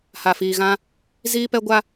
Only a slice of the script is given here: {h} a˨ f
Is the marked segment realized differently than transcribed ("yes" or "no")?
no